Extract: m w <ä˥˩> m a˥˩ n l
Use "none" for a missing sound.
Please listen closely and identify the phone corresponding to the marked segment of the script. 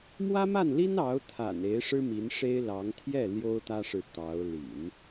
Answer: ä˥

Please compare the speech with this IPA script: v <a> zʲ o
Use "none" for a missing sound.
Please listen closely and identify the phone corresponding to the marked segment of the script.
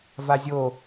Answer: a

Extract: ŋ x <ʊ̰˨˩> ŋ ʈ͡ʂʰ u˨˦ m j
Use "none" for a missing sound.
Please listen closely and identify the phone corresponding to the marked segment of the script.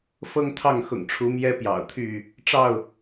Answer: ʊ̰˨˩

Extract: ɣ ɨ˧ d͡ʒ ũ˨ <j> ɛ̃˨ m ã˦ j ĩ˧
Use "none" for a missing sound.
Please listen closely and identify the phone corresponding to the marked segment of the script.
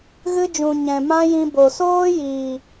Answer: ɲ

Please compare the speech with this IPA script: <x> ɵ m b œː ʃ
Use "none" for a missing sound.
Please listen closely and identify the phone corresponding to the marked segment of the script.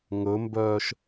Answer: ŋ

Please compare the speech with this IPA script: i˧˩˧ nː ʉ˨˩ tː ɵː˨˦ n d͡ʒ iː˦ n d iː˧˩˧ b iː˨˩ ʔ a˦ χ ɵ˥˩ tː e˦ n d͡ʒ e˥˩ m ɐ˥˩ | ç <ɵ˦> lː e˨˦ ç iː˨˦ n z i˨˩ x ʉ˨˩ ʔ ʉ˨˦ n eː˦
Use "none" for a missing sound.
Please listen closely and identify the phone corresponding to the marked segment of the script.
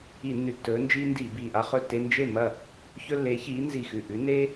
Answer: ɵ˦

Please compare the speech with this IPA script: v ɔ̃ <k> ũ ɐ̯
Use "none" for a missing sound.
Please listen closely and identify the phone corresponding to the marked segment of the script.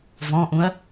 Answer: ʔ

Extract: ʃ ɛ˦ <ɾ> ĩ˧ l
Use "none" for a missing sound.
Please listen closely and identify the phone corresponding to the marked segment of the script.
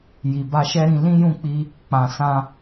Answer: ɾ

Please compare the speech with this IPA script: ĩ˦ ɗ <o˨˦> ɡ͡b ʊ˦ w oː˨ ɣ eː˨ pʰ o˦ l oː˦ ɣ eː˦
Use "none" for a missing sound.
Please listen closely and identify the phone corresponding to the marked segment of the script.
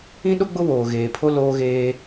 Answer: o˦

